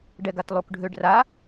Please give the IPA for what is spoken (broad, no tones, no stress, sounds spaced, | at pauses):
ɖ ɛ ɡ a t lˠ u k ɖʱ ø ɖ r a